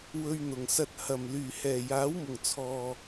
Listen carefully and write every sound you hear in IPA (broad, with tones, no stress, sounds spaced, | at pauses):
w ɵ˧ ɥ n̪ ʊ˨˩ ŋ s ɐ˧ t̚ h ɐ˨˩ m l yː˨˩ h ɛː˨˩ j aː˨˥ w m ʊ˨˩ ŋ t͡sʰ ɔː˨